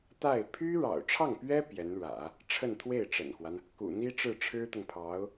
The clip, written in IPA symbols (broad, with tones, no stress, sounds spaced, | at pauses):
t̪ a˥˩ ɪ̯ pʰ y˥ ɻ ɑ̰˨˩ ʊ̯ ʈ͡ʂʰ ɑ˥˩ ŋ p ɥ ɛ˥ p j ɛ˧˥ n ɻ ä̰˨˩˦ | ʈ͡ʂʰ ə˥˧ n t̪ʰ w e˥˩ ɪ̯ ʈ͡ʂ ə̰˨˩ n x w a˦ n | k ṵ˨˩ n̪ i˥ ʈ͡ʂ ɻ̩˥˩ ʈ͡ʂʰ ɻ̩˥ t̪ ʊ˨ ŋ pʰ ɑ˧˥ ʊ̯